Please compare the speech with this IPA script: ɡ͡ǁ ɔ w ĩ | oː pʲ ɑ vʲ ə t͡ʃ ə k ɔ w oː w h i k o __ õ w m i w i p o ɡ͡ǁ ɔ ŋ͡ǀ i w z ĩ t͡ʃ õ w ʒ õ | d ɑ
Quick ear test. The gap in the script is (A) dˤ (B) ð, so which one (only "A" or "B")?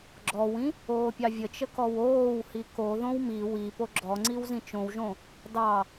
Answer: B